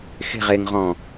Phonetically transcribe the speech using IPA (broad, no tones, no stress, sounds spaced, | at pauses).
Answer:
x e̤ ʁ e ŋ ʁ ɔ̃